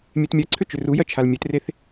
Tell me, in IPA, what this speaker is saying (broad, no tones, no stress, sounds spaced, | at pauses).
mʲ e t mʲ ɜ ǀʰ ʏ t͡ʃ ʏ r u j ɜ t͡ʃʰ a l mʲ e t r e θ